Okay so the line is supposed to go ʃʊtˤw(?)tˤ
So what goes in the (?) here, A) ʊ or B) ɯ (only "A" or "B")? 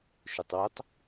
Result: A